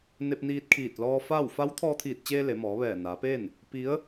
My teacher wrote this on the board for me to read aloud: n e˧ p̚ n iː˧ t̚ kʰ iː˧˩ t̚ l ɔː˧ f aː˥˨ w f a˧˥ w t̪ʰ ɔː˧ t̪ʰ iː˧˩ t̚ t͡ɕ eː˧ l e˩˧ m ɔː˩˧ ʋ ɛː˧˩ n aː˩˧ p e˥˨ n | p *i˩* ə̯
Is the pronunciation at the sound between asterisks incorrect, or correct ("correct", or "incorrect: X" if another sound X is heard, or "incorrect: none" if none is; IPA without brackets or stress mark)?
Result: incorrect: i˧˥